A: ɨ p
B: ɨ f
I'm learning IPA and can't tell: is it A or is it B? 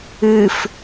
B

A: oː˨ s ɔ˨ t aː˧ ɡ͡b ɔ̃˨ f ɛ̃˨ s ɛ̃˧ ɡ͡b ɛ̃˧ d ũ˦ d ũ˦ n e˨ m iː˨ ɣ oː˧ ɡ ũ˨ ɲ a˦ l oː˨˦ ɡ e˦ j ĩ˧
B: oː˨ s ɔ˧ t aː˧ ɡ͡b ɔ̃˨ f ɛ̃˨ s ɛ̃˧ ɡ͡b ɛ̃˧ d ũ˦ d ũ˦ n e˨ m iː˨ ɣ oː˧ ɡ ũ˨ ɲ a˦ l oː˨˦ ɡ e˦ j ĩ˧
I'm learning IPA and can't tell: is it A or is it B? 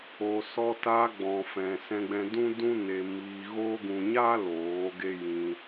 B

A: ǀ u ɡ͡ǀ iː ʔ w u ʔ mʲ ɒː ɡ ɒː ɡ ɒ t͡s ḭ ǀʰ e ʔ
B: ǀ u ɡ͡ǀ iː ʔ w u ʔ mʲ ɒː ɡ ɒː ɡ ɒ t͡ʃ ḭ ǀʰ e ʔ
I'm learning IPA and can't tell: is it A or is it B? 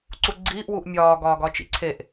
B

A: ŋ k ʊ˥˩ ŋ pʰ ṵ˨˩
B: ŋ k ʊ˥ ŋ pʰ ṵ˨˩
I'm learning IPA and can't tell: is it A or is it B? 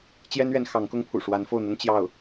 B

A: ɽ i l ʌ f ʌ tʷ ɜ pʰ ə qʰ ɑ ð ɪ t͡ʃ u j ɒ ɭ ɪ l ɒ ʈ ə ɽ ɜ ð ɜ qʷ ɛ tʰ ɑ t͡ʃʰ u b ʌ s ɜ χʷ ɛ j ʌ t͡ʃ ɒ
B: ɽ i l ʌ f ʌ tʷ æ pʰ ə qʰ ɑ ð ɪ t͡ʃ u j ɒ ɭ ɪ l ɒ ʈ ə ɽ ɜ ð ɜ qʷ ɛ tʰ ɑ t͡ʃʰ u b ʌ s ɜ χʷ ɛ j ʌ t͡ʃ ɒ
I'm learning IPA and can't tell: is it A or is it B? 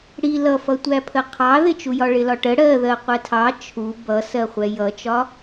B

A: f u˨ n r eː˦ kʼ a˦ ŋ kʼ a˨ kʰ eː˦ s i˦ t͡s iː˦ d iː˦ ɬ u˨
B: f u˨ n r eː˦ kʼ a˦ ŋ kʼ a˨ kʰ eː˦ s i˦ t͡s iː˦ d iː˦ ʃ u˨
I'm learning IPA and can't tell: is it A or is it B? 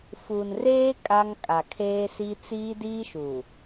B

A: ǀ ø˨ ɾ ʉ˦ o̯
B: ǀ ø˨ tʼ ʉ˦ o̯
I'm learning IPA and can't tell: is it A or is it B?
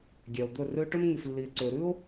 A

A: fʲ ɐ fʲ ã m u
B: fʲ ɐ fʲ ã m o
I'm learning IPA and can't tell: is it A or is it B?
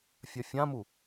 A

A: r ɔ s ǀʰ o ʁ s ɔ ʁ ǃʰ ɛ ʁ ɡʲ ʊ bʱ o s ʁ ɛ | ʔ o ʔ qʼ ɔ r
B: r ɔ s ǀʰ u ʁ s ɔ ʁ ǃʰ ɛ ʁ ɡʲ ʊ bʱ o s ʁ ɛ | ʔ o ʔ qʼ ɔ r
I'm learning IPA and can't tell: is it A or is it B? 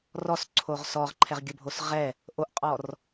A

